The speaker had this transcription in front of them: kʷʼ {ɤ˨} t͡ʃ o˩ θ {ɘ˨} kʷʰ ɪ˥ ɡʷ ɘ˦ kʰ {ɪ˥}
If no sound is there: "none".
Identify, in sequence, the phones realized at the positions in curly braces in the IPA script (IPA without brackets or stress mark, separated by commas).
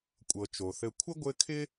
ɤ˨, ɘ˨, ɪ˥